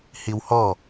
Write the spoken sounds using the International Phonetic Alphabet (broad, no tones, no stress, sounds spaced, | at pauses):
h i w h ɔ